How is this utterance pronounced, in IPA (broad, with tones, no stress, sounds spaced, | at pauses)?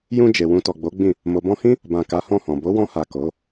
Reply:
j ũ˧ d͡ʒ e˨ w ũ˧ t ɔ˨ ɡ͡b o˨˦ ɡ͡b ĩ˦˨ | m o˨ b ɔ̃˧ h ĩ˦ | b ã˨ k a˨˦ h ɔ̃˦˨ h ɔ̃˨ b o˨˦ w ɔ̃˧ h a˨ k o˨˦